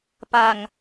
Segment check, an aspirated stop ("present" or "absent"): absent